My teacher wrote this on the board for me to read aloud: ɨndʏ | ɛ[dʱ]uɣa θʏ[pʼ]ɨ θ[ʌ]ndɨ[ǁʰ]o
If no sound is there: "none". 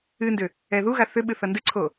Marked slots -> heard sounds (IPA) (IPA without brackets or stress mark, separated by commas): ð, ɓ, ʌ, ǀʰ